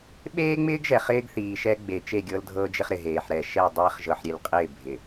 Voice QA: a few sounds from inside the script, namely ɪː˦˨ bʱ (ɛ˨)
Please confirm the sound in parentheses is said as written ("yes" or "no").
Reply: no